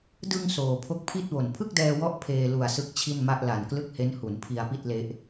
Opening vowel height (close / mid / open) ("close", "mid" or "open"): close